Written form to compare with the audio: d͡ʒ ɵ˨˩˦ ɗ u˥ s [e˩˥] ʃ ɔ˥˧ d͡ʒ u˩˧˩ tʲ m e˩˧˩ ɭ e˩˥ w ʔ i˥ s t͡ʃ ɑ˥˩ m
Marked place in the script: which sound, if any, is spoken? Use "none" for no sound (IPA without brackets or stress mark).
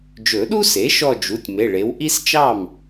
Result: e˩˥